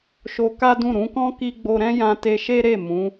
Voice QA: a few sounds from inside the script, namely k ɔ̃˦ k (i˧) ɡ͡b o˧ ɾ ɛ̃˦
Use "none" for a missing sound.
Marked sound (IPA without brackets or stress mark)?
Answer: i˧